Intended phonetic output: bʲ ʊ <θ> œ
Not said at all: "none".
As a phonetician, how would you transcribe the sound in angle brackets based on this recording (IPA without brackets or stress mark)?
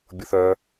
θ